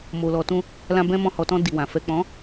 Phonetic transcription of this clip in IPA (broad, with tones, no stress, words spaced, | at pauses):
mo˨lɔ˨tũ˧ | lã˧ bɛ̃˦ mɔ̃˧hɔ˨tɔ̃˧ di˨wã˨ fɛ˨k͡pɔ̃˨˦